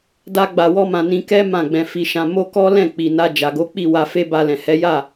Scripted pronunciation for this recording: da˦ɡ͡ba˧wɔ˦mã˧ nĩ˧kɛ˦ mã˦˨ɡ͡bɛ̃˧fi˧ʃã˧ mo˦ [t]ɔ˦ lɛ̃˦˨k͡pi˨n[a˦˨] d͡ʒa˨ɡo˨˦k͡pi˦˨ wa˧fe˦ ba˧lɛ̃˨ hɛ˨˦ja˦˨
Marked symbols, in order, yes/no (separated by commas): no, no